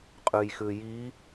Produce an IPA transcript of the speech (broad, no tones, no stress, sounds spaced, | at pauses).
qʼ ʉ j x ʉ j i